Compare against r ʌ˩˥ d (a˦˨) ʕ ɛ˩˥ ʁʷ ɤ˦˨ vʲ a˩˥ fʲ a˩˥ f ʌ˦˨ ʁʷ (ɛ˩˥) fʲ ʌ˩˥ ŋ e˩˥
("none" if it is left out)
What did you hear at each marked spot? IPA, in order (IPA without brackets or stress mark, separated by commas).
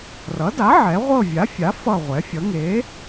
a˩˥, ɛ˩˥